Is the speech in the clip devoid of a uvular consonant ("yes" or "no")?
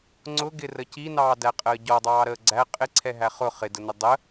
no